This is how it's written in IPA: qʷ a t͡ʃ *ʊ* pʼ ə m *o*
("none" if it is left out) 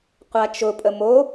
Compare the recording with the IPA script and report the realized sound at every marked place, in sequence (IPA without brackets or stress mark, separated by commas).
ʊ, o